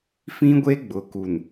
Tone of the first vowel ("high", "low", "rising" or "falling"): high